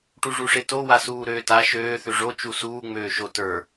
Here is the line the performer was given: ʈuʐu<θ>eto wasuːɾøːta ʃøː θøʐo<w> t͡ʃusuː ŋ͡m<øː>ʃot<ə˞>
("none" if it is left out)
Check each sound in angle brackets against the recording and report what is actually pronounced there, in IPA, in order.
ʂ, none, øː, ə˞

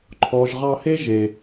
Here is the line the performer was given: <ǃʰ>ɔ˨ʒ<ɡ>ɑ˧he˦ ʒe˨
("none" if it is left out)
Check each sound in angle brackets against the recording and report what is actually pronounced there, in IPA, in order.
ǃʰ, ʁ

